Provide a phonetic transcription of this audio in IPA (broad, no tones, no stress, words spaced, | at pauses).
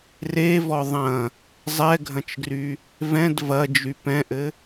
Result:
revɔ ðˤɐ̃ | zˤɛɡʱɐ̃t͡ʃɡry | vɛ̃d vɐd͡ʒy pɛ̃ʔɘ